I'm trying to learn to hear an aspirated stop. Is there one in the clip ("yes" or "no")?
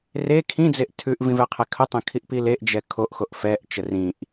yes